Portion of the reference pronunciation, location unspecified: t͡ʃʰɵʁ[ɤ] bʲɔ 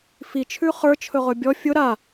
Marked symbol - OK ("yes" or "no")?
no